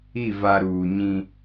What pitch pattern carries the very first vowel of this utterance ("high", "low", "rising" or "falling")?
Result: falling